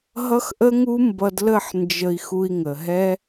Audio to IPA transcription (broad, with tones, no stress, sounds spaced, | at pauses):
ɦ ʌ˦ x ʔ ə˦ ŋ u˦ m b ʌ˧ d l ə˦˨ ħ n d͡ʒ ə˧ i̯ x u˧ i̯ ŋ ə˨ ɦ ɛ˦